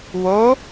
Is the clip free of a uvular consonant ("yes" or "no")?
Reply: yes